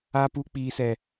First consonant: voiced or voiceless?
voiceless